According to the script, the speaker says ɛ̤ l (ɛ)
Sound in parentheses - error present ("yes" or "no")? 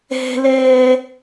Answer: yes